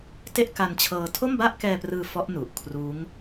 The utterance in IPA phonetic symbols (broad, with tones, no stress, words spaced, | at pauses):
te˥˩ʔka˧nt͡ɕʰɤː˧ tʰo˥˩mba˥˩ʔkɛː˧prɯː˧ fɔ˦˥ʔnu˨˩ʔ kʰruː˦˥ŋ